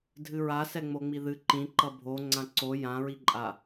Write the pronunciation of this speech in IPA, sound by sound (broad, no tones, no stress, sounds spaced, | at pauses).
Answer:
dʱ ɨ ɹ a s ɛ ŋ͡m o ŋ͡m i ð ɨ ǃ ĩ ǃ ʌ bʱ o ŋ͡ǀ ã ǀ o j ã ɹ i ǃʼ a